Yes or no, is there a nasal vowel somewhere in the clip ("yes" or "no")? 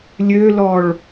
no